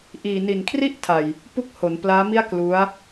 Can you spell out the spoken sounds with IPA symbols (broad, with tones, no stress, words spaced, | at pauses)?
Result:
ʔiː˨˩ni˨˩nkʰri˥˩ʔtʰa˨˩j | pu˥˩k̚ho˩˦nplaː˦˥mi˥˩a̯ klu˦˥a̯